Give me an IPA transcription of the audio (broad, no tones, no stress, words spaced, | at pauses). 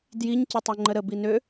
djiɲ cətˤoŋ͡ǃəɾə binø